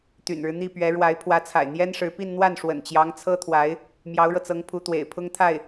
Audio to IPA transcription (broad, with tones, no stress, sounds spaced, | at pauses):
t̪ y̰˨˩ n ɻ ɻ̩˦ n̪ i˥˩ p ɥ ɛ˧˥ ɻ w a˧˥ ɪ̯ pʰ w ä˧˥ t͡sʰ a̰˨˩ ɪ̯ n̪ j ɛ˥ n ʂ ɻ̩˧˥ p i˥˧ n n̪ w a˥˩ n ʂ w ə̰˨˩ n t͡ɕ j ɑ˧˥ ŋ t͡sʰ ɤ˥ t̪ʰ w a˧˥ ɪ̯ | m j ɑ˧˥ ʊ̯ ɻ ɤ˧ t͡s ɤ˧˥ ŋ pʰ u˧˥ t̪ w ḛ˨˩ ɪ̯ pʰ ʊ˥ ŋ t̪ʰ a˥˩ ɪ̯